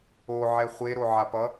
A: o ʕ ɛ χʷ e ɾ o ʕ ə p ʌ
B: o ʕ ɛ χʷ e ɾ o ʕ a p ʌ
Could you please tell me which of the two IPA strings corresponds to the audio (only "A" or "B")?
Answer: B